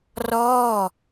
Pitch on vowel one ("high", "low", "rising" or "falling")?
falling